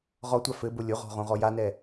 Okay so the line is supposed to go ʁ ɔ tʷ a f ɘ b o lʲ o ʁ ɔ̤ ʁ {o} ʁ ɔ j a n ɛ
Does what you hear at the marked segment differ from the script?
yes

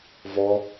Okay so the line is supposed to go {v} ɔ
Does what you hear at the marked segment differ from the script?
no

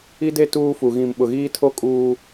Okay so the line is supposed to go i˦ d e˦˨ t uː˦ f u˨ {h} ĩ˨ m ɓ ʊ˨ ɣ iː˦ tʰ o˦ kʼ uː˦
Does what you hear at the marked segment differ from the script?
yes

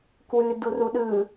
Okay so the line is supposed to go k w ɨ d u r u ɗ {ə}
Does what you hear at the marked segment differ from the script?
yes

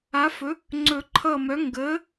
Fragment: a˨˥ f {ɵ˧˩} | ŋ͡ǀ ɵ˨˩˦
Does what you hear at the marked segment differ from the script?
yes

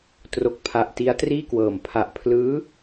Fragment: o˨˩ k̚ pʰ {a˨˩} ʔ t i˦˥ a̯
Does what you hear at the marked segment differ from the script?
no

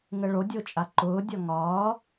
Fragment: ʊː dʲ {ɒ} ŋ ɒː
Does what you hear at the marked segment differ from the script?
no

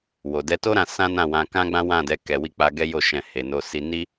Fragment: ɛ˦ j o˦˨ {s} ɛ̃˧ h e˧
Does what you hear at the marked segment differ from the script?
yes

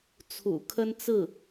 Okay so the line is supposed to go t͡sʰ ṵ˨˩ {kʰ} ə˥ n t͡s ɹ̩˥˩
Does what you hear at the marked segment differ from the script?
no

